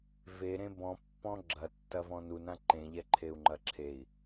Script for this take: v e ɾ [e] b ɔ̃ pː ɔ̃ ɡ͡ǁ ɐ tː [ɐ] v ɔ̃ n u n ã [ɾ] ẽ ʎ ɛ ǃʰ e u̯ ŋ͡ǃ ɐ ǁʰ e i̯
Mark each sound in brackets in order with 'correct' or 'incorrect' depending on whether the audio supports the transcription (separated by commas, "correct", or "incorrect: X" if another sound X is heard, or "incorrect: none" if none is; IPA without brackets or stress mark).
incorrect: ẽ, correct, incorrect: ǃ